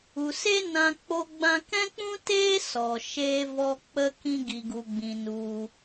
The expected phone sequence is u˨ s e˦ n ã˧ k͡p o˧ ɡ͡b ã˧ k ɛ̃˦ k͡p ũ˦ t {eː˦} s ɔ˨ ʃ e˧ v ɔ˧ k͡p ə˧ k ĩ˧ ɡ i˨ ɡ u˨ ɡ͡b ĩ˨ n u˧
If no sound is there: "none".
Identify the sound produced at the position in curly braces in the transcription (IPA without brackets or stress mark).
eː˦